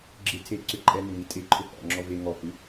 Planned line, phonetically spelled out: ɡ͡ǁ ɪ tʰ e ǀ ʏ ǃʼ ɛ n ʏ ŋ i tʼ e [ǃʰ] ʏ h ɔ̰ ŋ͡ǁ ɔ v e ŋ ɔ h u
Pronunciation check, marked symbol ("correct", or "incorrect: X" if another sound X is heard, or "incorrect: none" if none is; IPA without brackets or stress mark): correct